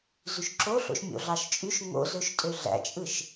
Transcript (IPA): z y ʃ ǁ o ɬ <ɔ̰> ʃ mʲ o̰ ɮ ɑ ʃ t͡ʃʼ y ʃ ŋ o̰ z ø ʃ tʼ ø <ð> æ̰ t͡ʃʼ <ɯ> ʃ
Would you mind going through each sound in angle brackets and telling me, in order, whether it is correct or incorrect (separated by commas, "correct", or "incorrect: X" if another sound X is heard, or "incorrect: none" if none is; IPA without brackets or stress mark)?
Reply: incorrect: o̰, incorrect: ɮ, correct